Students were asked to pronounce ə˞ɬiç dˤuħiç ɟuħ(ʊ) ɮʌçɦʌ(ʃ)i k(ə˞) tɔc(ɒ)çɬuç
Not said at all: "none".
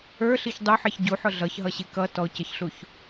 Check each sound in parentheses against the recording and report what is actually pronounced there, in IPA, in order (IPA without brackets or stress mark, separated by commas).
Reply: ʊ, ɕ, ʌ, ʌ